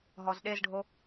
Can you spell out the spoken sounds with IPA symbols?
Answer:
ɦ ɔ z ɗ e z ɖʱ o

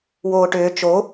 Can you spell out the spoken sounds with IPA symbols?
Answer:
w oː ʈ ʏː t͡ʃ o

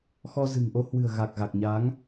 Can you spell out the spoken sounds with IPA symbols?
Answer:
x ɔ˧ z ɨ̤˨˩ ŋ ʔ o˧ h w ɨ̤˨˩ ə̯ ɣ a˨˩ k̚ ɣ a˨˩ k̚ ɲ a˨˦ ŋ

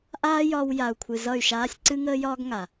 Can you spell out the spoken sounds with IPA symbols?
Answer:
ʔ aː˦ j ɒ˧ w j a˨ u̯ kʷʰ ɨ˨ z ʌ˦˨ y̯ ʃ aː˦ sʲ ǀ ɨ˦ ŋ əː˦ j ɒː˦ ɡ ŋ a˨

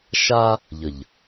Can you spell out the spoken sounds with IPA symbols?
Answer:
ʃ a˦ | ʎ ə˨ ʎ

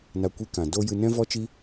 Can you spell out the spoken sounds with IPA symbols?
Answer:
n a˧ kʷ i˧ k ã˨ d o˦ j ɨ˧ n ɛ̃˦ v ɔ˦ t͡ʃ i˦

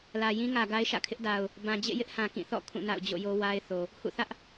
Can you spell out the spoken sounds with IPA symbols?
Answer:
l ä˨ j ĩ˦ ŋ ä˨ ɡ a˦ ɪ̯ ʃ ä̰˦˨ kʰ ɪ˦ ʔ d a˨ ʊ̯ | b ã˨ d͡ʑ ḛ˦˨ j ɪ˦ ʔ h ã˨ k ĩ˦˨ θ ɔ̰˦˨ kʰ ũ˦˨ n a̰˦˨ ʊ̯ d͡ʑ o̰˦˨ j o˦ w a˦ ɪ̯ θ o˨ | h ṵ˦˨ θ ä˦ ʔ

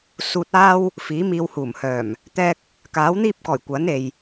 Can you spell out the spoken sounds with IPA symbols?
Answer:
s uː˧ t̚ aː˥ w | f iː˨˥ m iː˧ w h uː˨˩ m h œː˨˩ m | t̪ ɛː˥ k̚ | k aː˨˥ w n̪ iː˥ p̚ k ɔː˨˩ j kʷ ɐ˨˥ n e˨ j

